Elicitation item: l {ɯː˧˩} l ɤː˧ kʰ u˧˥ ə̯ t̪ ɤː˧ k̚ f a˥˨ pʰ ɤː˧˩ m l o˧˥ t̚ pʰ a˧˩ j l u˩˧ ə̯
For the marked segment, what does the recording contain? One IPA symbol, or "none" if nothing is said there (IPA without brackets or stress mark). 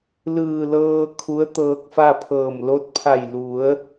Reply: ɯː˧˩